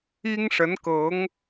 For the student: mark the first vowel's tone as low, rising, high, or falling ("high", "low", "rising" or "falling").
high